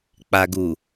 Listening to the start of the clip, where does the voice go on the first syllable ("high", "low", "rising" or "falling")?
low